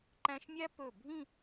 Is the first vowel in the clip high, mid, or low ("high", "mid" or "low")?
low